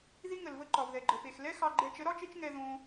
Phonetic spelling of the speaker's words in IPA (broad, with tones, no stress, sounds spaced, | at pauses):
ð i˦ ŋ ə˨ l v ə˦ ǃ ɒ˨ v ð ɛ˨ ɡ͡ǃ ə˨ p e˨ x l ɛ˦ x ɑ˧ ɡ͡ǃ ɛ˧ t͡ʃ ə˨˦ ɾ ɒ˦ t͡ʃ e˦ t͡ʃ ŋ ɛ˧ ð õ˧